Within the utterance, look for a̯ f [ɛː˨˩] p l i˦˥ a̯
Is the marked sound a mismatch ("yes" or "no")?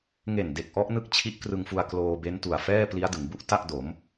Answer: yes